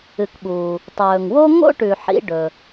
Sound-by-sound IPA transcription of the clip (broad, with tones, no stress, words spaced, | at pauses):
ɨ˩kɓuː˩ | tˤɵː˩ŋwo˥ ŋo̰˥ʈʉ˩ ħḭ˧ɖɵ˩